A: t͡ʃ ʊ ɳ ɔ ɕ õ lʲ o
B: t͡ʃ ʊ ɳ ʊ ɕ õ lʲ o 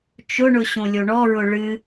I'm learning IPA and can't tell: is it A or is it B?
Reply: B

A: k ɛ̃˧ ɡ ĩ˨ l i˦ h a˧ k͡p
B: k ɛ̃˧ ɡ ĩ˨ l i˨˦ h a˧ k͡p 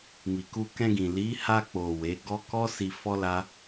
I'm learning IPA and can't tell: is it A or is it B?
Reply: B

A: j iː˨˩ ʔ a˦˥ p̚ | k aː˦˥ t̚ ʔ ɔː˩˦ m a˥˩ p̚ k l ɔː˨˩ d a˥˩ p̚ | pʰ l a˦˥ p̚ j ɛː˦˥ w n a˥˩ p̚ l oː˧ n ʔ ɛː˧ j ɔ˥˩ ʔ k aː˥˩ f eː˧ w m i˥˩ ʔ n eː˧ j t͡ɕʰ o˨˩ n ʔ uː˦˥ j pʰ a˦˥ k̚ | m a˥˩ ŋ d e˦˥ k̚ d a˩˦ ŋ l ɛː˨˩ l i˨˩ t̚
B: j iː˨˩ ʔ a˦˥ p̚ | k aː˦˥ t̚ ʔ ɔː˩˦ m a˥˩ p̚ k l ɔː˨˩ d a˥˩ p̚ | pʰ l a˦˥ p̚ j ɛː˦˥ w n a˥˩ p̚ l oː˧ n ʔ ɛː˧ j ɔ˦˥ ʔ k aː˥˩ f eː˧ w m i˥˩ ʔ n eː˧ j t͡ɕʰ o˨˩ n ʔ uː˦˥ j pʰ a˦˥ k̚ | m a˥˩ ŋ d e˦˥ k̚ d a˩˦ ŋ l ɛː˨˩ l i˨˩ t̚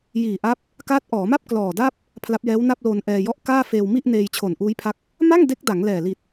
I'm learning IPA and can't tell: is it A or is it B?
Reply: B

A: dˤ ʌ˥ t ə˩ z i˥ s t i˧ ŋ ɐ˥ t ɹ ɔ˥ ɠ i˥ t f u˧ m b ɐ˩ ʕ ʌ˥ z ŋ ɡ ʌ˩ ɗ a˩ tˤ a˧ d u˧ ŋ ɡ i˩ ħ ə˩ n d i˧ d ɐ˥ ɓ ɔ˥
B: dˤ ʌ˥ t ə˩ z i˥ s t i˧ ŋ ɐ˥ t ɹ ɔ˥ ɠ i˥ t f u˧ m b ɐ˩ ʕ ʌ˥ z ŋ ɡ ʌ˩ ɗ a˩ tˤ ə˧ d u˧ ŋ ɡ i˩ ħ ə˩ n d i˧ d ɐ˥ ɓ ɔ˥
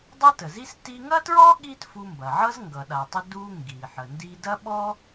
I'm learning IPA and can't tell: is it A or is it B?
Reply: B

